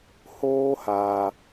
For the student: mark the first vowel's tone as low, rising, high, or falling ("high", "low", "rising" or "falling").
high